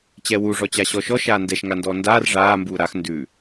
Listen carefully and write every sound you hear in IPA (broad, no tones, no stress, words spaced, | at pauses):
t͡ɕɛwu ʐɔt͡ɕaɕɔʃɔ ʃaːndɛʃ ŋandɔːndaːr ʐaː mbuːɾax ndʉ